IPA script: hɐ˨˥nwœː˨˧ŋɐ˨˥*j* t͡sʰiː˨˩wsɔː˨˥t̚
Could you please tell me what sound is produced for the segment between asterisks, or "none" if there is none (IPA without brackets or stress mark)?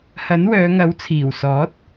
w